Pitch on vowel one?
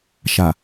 low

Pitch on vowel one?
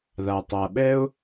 low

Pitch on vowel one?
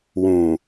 low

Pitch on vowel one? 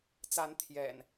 rising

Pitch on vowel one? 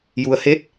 low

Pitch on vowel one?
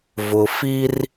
low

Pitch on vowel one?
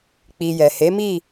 low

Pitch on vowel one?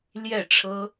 falling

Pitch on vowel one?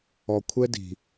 low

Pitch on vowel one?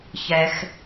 low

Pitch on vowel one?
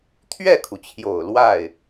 falling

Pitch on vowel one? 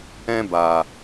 high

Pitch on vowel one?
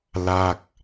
falling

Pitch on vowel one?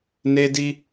high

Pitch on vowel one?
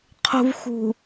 low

